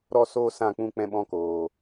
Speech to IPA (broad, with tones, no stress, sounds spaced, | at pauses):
ɾ ɔ˦ s oː˦ s ã˦˨ k͡p ũ˦ k͡p ɛ̃˦ ɓ ɔ̃˦ k oː˨